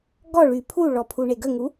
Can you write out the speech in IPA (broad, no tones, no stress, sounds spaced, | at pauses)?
ɡ ɔ ɭ y pʰ u ɭ ɔ pʰ u ɳ e ɡ ə ŋ u